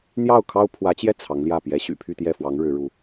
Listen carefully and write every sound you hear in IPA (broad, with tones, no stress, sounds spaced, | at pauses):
n̪ j ɑ˥˩ ʊ̯ kʰ ɑ˥ ʊ̯ pʰ w ä˧˥ t͡ɕ j ɛ˥˩ t͡sʰ ɑ˧˥ ŋ l j ä˥˩ p j ɛ˧˥ ɕ y̰˨˩ pʰ y˥˧ t̪ j ɛ˥˩ f w ɑ˧˥ ŋ ɻ ɻ̩˧˥ ɻ u˧˥